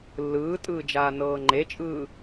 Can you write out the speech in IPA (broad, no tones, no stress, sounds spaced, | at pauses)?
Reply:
lː ɯː tʼ ɯː d͡ʒ aː n ɤː ŋ͡ǃ e t͡ʃʼ ɯː